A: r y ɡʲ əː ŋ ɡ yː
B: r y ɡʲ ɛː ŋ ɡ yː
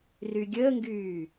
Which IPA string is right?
A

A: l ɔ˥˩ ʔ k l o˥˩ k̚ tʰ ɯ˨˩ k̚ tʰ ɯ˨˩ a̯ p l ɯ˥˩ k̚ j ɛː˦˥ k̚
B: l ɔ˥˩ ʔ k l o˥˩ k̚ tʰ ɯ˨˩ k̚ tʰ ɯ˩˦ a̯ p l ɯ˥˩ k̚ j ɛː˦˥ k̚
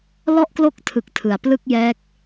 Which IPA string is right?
B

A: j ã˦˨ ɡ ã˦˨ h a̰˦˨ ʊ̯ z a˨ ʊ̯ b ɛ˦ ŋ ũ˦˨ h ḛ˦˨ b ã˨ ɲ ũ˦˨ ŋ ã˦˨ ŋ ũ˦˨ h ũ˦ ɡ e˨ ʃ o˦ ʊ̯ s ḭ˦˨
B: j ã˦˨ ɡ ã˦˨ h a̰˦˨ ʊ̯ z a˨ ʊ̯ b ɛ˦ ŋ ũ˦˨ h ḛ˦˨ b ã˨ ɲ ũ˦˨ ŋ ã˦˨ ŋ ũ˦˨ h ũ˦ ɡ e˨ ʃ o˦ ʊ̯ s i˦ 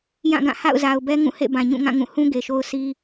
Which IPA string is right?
B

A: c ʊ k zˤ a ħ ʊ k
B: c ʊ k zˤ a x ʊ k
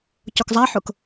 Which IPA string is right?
A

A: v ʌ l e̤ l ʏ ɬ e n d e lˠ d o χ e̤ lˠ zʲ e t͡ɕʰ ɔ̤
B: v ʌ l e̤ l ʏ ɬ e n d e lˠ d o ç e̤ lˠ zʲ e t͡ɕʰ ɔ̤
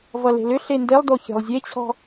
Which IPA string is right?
B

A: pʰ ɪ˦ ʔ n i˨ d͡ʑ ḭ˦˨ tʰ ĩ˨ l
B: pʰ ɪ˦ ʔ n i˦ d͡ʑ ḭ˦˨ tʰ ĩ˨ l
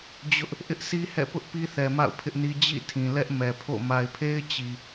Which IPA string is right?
B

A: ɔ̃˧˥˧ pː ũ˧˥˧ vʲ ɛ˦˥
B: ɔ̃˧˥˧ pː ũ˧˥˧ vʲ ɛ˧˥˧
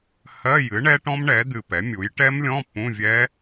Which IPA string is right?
A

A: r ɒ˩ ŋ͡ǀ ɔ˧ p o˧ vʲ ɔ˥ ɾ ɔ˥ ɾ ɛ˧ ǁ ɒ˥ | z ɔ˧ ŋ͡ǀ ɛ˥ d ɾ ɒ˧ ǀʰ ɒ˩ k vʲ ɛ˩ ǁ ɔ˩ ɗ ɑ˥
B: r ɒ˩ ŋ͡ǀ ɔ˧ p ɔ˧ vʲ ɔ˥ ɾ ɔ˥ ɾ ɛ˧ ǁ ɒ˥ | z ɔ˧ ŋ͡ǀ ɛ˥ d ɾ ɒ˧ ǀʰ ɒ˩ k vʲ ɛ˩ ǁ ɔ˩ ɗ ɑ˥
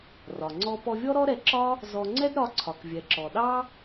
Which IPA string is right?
B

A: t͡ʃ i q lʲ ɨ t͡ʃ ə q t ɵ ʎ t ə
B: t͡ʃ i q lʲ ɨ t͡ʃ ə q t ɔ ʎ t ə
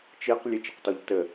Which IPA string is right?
B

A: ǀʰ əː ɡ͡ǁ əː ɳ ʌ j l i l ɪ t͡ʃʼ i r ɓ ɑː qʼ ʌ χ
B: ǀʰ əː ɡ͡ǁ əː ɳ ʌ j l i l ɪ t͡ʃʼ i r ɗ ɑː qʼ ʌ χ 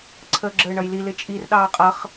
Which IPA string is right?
B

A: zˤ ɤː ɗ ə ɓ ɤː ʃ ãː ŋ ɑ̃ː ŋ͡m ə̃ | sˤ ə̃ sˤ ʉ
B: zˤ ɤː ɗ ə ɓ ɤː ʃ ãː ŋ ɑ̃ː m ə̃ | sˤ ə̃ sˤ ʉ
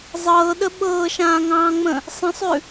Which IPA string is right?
A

